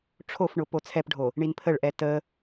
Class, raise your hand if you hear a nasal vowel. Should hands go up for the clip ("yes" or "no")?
no